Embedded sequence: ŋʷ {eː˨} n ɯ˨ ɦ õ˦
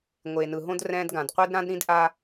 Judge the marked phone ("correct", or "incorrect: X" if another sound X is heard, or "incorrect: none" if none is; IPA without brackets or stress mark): correct